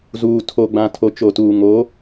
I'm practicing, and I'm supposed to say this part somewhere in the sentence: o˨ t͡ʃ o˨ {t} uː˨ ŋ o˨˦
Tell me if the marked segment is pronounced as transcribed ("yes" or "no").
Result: yes